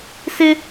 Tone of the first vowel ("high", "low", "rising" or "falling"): high